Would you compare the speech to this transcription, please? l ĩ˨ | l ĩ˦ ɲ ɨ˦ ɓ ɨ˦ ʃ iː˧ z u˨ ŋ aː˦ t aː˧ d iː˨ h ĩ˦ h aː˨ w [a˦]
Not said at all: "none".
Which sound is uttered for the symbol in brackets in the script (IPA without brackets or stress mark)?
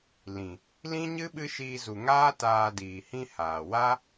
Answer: a˦